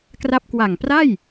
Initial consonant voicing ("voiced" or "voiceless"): voiceless